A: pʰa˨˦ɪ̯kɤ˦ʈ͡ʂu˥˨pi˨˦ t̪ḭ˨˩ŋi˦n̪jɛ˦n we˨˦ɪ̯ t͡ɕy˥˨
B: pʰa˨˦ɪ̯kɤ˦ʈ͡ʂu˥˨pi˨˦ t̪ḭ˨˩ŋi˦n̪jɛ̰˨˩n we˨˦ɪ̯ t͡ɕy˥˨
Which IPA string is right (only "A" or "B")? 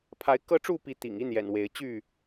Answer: B